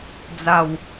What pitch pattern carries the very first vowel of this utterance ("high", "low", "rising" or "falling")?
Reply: low